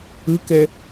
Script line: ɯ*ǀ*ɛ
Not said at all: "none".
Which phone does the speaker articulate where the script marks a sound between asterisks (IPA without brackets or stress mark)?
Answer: k